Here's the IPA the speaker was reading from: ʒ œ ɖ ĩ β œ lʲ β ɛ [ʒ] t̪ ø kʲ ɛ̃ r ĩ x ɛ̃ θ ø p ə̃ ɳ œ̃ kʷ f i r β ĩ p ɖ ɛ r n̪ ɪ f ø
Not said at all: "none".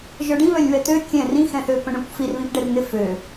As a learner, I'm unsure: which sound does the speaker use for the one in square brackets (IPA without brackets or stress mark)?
none